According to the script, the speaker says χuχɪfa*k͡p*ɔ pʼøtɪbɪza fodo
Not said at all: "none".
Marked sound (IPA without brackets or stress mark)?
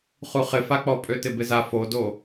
k͡p